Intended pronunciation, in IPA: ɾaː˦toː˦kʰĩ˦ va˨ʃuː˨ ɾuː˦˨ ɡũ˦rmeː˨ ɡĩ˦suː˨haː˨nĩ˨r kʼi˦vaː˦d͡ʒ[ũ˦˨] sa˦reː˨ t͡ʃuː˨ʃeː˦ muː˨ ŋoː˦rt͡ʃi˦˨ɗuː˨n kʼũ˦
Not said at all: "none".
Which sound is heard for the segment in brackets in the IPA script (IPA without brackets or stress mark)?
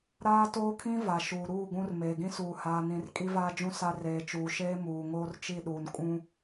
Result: ũ˦˨